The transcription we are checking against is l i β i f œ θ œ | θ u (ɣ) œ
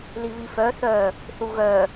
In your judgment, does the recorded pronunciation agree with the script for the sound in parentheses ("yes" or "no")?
yes